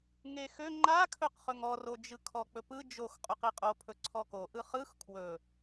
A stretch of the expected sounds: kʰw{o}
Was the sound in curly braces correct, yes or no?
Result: no